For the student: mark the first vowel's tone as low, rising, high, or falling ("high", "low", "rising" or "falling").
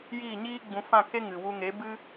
falling